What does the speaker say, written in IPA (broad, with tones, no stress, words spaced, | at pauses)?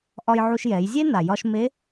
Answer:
ʔɒ˧jʕu˧ʃjɛ˩˧j zʲe˥na˩jɒ˧ʃme˧˥